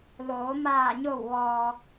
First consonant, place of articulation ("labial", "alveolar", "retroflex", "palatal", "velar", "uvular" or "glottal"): alveolar